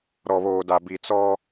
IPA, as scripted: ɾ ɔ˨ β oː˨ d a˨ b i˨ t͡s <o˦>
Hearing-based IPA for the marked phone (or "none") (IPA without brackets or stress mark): ɔ˦